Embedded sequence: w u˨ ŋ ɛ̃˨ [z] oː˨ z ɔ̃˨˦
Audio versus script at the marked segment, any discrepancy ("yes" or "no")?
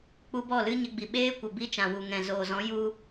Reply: no